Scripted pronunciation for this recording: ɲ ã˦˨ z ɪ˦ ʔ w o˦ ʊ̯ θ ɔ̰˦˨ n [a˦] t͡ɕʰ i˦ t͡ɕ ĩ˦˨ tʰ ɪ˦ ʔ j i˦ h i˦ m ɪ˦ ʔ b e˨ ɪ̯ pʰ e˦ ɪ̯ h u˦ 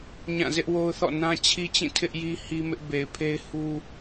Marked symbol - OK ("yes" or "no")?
no